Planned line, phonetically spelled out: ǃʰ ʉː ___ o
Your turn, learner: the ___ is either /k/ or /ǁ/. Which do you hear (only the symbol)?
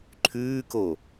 k